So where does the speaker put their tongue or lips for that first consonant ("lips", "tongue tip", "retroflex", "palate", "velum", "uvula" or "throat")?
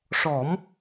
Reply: retroflex